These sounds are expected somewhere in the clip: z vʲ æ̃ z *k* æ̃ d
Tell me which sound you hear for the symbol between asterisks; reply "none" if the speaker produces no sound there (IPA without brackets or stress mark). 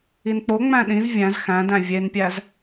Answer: x